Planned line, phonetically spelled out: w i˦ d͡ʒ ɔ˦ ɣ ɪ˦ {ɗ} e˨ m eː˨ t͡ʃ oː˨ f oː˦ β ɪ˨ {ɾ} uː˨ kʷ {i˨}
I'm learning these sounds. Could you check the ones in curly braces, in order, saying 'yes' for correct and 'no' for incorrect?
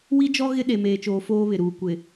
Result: yes, yes, no

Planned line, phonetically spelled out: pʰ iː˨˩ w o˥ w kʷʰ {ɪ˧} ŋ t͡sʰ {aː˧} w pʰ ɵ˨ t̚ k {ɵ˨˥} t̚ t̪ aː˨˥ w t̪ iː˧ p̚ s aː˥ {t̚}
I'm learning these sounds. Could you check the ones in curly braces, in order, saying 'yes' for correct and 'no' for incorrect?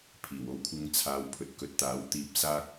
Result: no, yes, no, no

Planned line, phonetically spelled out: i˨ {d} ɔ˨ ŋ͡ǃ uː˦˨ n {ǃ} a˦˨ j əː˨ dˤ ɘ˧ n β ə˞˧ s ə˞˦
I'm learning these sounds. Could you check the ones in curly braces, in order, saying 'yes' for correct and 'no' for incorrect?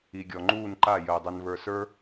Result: no, yes

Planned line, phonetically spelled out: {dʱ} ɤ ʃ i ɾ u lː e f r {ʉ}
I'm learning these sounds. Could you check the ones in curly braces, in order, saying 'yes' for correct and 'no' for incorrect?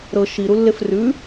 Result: no, yes

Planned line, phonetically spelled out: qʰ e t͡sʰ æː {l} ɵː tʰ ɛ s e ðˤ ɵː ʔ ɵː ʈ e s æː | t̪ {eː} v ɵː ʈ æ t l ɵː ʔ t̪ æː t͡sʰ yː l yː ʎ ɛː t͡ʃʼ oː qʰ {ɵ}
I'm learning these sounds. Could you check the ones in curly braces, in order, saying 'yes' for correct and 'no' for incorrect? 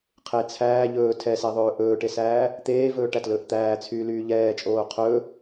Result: no, yes, yes

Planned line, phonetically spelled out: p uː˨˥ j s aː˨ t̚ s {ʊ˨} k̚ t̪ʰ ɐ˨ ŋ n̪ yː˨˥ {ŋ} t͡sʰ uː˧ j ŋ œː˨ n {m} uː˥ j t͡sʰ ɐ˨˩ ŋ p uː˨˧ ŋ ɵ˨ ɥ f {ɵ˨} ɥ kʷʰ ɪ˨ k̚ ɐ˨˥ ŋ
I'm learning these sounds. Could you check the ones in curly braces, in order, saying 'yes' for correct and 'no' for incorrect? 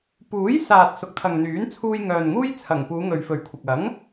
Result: yes, no, no, yes

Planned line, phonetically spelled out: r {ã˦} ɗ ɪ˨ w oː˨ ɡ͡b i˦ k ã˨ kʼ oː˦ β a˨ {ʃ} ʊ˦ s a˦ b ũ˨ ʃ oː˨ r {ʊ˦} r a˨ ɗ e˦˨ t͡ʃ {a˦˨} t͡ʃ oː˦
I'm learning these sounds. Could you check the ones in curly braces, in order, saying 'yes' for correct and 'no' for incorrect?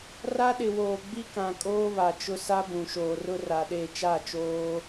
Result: no, no, yes, yes

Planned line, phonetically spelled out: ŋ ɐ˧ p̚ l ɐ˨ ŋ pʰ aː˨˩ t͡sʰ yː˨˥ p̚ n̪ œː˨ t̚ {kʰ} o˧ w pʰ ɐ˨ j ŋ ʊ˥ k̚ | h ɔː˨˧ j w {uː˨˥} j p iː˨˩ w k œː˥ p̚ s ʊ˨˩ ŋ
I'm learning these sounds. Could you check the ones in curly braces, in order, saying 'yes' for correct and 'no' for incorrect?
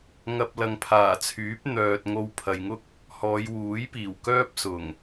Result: no, yes

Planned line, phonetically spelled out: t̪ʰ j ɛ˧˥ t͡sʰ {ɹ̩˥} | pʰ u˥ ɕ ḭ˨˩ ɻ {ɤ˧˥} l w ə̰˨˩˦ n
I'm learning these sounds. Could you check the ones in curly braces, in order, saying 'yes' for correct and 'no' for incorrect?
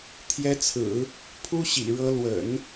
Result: no, yes

